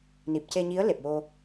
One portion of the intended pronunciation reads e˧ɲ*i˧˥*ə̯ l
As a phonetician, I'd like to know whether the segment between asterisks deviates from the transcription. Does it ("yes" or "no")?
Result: no